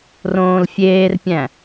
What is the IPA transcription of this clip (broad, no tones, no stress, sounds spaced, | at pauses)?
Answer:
r õː l fʲ eː r pʲ æ̃